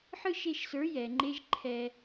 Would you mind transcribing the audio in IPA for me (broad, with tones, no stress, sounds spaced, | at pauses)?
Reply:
ħ ɯ˦ ʃ e˧ ʃ s ə˞˨˦ j ɛ˨ ŋ͡ǃ e˦ ʒ ǃʰ ɛ˧